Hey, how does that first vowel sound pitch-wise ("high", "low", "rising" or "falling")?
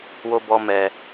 low